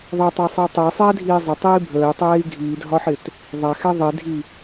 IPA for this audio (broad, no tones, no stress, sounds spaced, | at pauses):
ðˤ ɛ tˤ ɜ sˤ ʌ i̯ tˤ əː sˤ ɛː dʱ iː zˤ ɪ tˤ iː bʱ əː i̯ tˤ ɛː i̯ ɡʱ iː dʱ ɒ ħ ɪ t | ðˤ æ x ɛ ðˤ i dʱ i